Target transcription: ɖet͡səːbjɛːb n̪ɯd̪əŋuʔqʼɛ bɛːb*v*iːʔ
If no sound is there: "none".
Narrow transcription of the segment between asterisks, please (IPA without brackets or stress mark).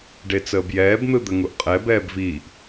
v